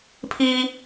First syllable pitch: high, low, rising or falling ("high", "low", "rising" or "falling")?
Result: high